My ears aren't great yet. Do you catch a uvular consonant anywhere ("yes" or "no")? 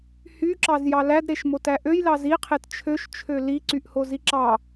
yes